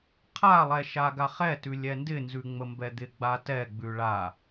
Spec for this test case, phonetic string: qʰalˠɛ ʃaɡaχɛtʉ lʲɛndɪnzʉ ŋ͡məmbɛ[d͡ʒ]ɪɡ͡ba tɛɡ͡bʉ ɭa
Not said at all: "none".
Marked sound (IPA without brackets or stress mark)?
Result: d̪